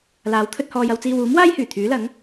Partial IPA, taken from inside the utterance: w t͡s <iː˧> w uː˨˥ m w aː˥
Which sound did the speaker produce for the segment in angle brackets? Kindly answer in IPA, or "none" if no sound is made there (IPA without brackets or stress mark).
iː˧